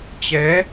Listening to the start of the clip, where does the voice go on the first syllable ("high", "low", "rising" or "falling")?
rising